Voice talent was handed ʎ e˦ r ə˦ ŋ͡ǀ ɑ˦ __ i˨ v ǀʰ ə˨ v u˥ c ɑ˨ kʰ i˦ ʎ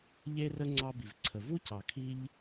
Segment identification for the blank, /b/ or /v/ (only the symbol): b